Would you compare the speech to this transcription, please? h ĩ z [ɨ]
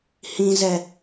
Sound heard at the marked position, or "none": ɛ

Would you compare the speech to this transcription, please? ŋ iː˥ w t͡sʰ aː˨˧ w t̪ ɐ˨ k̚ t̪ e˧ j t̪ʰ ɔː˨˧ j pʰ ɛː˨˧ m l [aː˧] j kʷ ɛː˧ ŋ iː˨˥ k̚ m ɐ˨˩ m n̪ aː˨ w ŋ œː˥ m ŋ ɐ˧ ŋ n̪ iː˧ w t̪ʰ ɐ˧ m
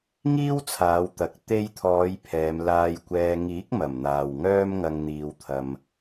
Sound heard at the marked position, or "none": aː˧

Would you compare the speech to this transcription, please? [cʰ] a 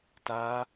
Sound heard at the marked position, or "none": t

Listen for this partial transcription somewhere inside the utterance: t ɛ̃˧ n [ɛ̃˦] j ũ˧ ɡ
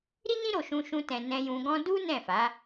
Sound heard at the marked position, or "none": ɛ̃˧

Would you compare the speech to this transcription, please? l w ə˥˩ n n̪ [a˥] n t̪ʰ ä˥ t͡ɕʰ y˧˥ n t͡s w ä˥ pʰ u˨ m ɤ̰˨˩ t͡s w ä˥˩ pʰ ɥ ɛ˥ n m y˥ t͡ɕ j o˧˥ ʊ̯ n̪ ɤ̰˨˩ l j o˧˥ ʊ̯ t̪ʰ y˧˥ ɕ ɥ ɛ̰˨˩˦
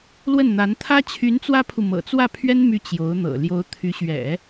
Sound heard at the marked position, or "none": a˧˥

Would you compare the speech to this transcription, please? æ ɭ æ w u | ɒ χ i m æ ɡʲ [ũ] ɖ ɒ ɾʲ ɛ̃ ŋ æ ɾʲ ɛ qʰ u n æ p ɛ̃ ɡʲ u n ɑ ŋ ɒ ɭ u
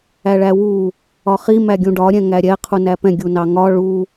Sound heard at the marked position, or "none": ũ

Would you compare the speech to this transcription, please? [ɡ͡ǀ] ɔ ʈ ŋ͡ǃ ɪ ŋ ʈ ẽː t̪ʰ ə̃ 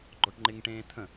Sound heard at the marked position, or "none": ɡ͡ǃ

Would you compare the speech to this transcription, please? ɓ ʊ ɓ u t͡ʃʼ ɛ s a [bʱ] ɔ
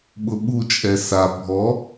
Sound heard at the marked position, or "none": bʱ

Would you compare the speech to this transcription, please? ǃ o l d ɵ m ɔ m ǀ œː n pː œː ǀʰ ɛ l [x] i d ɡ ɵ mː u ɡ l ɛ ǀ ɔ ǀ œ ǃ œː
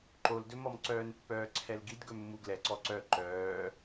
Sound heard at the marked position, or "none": ɡ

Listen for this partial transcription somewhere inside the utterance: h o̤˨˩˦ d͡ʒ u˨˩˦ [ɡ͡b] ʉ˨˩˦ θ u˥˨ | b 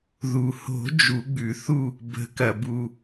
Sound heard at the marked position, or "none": ɡ͡b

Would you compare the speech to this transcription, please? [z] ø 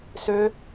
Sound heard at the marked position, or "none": s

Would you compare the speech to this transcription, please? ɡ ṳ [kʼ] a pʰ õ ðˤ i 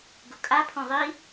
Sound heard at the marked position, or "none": kʼ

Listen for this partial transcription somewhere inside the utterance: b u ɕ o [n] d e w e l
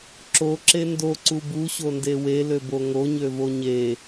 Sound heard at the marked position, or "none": n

